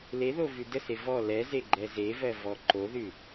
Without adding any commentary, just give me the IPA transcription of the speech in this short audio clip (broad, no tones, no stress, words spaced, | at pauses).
leðovʉ dəse vɔ lɛzeɡ͡ǃɛ zevɜvɔ ǃoðʉ